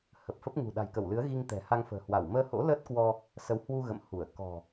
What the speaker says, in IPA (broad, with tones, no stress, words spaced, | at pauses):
hə˨˩p̚fə˦˥p̚ ŋṳ˨˩ ɗa̤˨˩jkə˧˩wlɨ˨˦ə̯ ɣi˧ŋ t̪ɛ̤˨˩ ha˧ŋfə̤ː˨˩hwa˧˩w məː˧ho̰˧˥ ləː˦˥t̚kwɔ˧ | sə˨˦whwu˧ ɣə̰˧˨m hu˧˩ə̯ kɔ̤˨˩